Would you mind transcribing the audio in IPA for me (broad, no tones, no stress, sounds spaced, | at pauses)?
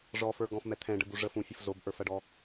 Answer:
ʐ ɔ f ə˞ ɡ ɔ̃ f m ɛ t̪ʰ ɛ̃ ɖ ə b u ʐ ə f ũ fʲ ə f z o b ʔ ə˞ f ɐ ɖ ɔ